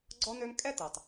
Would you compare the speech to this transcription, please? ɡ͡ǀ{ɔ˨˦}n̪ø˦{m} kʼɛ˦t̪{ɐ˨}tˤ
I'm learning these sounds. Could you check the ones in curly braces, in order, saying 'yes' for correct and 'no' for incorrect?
no, yes, yes

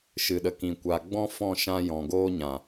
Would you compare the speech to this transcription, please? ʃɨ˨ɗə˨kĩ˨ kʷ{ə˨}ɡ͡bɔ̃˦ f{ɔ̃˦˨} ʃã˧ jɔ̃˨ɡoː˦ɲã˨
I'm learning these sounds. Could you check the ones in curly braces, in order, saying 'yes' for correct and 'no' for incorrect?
no, yes

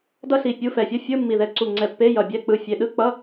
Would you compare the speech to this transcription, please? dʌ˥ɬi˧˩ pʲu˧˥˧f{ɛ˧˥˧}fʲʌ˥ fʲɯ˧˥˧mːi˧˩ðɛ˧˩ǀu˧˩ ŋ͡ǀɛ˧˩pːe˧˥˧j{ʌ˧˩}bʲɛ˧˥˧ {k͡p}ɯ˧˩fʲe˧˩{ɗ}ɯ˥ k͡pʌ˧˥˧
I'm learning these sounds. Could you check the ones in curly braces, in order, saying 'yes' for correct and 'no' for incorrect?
no, yes, yes, yes

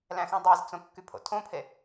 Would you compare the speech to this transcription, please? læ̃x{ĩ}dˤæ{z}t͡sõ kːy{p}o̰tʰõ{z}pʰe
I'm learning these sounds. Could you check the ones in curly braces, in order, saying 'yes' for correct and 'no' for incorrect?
yes, yes, no, no

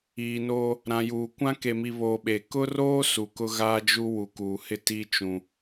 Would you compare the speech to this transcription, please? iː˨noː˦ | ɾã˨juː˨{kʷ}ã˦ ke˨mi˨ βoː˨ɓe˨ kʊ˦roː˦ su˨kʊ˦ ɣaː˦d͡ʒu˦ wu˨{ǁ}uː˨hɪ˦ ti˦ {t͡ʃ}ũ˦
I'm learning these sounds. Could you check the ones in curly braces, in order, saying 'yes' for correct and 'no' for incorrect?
yes, no, yes

